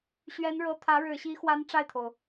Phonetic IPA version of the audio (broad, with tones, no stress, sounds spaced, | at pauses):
ɕ ɥ ɛ˧˥ n ɻ ɤ˧˥ t̪ʰ ä˧˥ ɻ ɻ̩˨˩ ɕ i˧˥ x w a˧˥ n ʈ͡ʂ a˥˩ ɪ̯ t̪ʰ o˩ ʊ̯